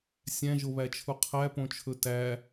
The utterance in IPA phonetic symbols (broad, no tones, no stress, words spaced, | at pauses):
sʲæ̃ʒoβæt͡ʃʰu qʰæpõt͡ʃʰɵ tæ